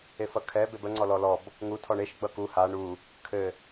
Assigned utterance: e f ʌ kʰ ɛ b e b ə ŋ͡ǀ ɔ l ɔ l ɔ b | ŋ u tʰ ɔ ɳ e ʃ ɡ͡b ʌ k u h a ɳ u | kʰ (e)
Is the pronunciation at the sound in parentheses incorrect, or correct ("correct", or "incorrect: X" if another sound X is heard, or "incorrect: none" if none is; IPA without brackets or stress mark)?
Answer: incorrect: ɘ